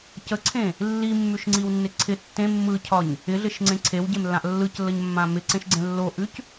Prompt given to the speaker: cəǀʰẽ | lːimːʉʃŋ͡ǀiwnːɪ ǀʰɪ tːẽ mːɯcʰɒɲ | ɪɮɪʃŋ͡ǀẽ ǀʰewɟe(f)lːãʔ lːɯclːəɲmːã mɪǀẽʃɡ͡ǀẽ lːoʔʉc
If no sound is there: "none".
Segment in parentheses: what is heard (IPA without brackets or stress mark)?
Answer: m